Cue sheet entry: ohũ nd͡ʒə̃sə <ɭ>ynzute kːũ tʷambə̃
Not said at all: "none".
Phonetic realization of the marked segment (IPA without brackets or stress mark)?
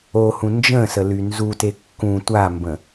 l